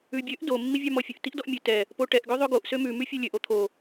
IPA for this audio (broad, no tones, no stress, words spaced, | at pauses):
ʉbʲøʔ do mːivʲɑmɔfʲɵʔ tiʔdɔʔmʲʉ tɛ | poʈɛʔ ɡøðˤøɡoʔ sømʉ mʉfʲɛlʲøʔ ot̪ʰo